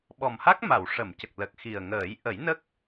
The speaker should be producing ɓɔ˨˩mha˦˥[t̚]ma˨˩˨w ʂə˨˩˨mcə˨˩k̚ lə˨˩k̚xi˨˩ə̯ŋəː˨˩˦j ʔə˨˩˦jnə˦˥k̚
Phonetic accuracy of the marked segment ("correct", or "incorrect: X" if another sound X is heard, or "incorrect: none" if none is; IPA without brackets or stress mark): incorrect: k̚